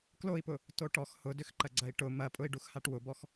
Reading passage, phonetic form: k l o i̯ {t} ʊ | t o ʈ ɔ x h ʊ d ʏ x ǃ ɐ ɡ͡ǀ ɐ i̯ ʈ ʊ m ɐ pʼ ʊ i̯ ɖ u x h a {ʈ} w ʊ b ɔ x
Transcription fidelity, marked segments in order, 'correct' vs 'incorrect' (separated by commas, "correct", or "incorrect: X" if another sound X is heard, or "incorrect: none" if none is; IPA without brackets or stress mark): incorrect: p, correct